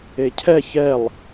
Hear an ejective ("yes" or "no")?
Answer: no